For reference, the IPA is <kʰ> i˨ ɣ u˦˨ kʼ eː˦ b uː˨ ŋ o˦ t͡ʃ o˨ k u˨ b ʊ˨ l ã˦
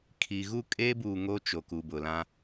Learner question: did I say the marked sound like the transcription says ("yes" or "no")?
yes